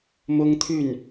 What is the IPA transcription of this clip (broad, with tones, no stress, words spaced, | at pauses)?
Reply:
mʊ˥ŋt̪ʰy˥˩n